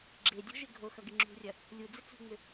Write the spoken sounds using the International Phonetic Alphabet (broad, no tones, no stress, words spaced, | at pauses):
ɡ͡ǁedʲɔ̤ʒɪ ɡʱoxɐɡɪ ŋ͡ǁṳrʲɐ | lʲud͡zɪ t͡sṳŋ͡mʏ